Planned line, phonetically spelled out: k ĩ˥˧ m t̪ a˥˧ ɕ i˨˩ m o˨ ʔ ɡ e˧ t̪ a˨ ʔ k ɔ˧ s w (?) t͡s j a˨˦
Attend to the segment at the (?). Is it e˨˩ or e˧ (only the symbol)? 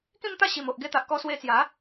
e˧